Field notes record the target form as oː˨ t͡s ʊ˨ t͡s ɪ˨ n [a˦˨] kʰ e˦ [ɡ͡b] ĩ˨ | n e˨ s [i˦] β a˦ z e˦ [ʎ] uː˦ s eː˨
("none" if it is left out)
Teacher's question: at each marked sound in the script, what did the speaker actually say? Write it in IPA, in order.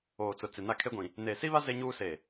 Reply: a˦˨, ɡʷ, i˦, ɲ

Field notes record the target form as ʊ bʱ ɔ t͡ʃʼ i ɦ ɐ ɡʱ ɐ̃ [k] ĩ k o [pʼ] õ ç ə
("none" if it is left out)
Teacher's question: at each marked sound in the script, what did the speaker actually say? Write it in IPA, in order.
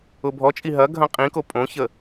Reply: qʼ, pʼ

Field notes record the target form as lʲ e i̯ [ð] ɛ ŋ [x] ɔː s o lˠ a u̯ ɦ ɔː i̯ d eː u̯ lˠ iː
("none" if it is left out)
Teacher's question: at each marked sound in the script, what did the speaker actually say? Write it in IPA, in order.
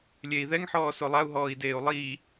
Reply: ð, ħ

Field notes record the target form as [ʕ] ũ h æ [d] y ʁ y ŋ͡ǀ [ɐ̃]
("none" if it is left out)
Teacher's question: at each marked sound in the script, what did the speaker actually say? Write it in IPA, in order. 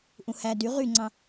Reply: ʔ, d, ɑ̃

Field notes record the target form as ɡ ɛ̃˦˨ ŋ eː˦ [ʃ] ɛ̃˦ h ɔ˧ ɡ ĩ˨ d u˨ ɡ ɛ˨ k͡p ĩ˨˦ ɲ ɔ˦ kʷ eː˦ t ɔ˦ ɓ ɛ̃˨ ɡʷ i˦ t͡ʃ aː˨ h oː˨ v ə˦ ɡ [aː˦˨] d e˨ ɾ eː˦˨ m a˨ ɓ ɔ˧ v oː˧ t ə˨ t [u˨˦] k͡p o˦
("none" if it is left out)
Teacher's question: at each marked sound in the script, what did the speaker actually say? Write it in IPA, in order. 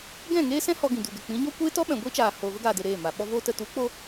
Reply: s, aː˨, u˨˦

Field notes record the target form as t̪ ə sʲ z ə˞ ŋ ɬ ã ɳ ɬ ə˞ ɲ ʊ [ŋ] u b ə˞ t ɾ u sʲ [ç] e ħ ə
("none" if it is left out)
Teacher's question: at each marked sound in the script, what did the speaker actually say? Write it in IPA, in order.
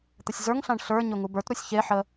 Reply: ŋ, ç

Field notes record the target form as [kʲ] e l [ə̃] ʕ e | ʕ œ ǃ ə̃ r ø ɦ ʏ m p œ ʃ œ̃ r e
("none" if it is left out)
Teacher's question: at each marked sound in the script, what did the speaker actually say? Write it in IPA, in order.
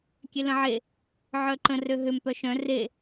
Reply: kʲ, ə̃

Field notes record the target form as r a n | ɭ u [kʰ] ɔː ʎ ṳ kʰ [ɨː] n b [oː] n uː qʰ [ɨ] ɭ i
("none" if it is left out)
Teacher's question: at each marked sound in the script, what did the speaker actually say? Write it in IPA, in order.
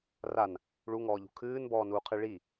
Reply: ŋ, ɨː, ɔː, ɨ

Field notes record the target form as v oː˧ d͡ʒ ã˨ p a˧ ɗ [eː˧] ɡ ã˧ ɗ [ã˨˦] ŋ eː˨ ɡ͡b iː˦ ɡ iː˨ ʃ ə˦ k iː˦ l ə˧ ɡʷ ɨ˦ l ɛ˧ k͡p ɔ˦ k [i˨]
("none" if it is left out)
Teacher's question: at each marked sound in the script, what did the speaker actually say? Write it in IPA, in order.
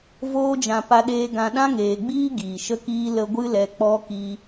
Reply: eː˧, ã˦, i˧

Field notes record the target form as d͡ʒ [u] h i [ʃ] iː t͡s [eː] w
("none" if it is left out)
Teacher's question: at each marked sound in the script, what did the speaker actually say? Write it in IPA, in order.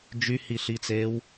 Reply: y, ɬ, eː

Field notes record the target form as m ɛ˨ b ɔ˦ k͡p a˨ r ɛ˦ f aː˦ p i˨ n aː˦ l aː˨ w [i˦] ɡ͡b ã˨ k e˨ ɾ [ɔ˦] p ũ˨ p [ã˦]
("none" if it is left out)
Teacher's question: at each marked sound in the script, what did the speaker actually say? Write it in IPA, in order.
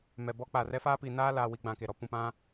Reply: i˦, ɔ˦, ã˦

